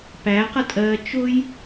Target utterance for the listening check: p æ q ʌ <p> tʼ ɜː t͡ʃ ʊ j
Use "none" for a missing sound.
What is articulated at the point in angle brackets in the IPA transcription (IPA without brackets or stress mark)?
none